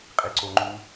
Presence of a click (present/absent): present